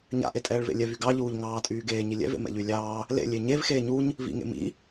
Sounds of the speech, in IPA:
ɲ a̰ ʔ e tʼ ɛː ɭ v ḛ lʲ ɛ v y ɡ ɑ ʎ uː ʎ ŋ ɑː tʼ yː ɡ eː ɲ i lʲ ɛ̰ v ḛ m ɛ̰ ʎ y lʲ ɑː | l ḛ lʲ e ɲ e v x eː ɲ u ɲ | v ḭ ŋ ḛ m ḭ

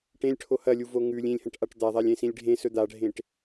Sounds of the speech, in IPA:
ʈ ẽ lʲ ʈʰ o h ɐ lʲ u v o ŋ ʉ lʲ ĩ lʲ h ɐ̃ ʈ ʔ a ʈ d̪ a ðˤ a lʲ ẽ s ĩ lʲ ɖʱ ẽ s ɵ d̪ a ɖʱ ẽ ʈ

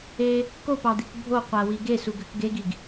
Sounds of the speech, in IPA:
e | k o p ɑ d̪ i k bʱ o qʷ æ w i ɡ e s u ɡ ø k ɡ e ɡ i ɡ

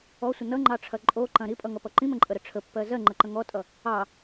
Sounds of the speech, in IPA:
ɔ sʷ ə n ʌ ŋ͡ǃ ɑ ʈ͡ʂʰ ɐ ǃʼ o ǃ ɐ̃ ɾ i pʼ ʌ ŋ ʌ p ʌ ǃ ĩ m ə̃ ǃʼ ə ɾ ə ʈ͡ʂʰ ə pː ɜ z ɜ ŋ͡ǃ ə ǃ ə̃ ŋ ɔ tʼ ʌ | ɑ

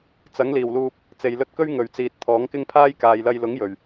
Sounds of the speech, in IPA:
t͡s ɐ˨˥ ŋ l iː˨˩ w l uː˧ p̚ | t͡s e˨ j l ɵ˧ t̚ k ɵ˥ ɥ ŋ ɵ˨˩ ɥ t͡s iː˨ t̚ t̪ʰ ɔː˨˥ ŋ k ɪ˥ ŋ pʰ aː˥ j k aː˨ j l ɐ˧ j l ʊ˨˥ ŋ j ɵ˨˩ ɥ

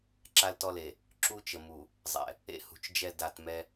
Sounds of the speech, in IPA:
ǁ a˦ l t ɔ˦ l e˨ | ǁ u˦ t͡ʃ ə˨ m u˨ | zˤ ɛ̰˨ | ḛ˦ h ṳ˨ t͡ʃ d͡ʒ ɛ˦˨ d a˦˨ t m ɛ˦

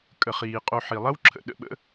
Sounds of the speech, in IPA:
kʼ ə˩ χ iː˩ qʼ o˨ ħ i˩ lˠ ɐ˥ w ǁʰ ə̰˨ ɗ ə̰˨ ɓ ə̰˦

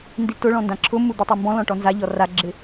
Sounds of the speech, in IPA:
n d i t ʊ ɭ ɔ̃ n d ã ǁʰ ʊ m u d̪ i tˤ ɛ m b ɔ̃ l ɔ̃ ʈ ɔ n z a ʎ ɔ r a ɡ͡ǁ ɪ

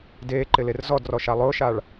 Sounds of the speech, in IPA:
d eː ǃ ɪ l e r z ɔ d r ɔ ʃ a lˠ ʊː ʃ a ɭ

